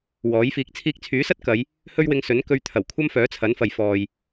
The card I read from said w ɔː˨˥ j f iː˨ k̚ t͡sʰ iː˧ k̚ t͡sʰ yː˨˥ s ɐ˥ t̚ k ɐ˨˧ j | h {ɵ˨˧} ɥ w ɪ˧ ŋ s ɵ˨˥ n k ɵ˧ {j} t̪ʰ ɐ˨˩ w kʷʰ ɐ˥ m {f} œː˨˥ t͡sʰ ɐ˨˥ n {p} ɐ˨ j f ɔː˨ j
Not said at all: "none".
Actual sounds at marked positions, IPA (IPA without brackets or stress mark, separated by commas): ɵ˥, ɥ, f, f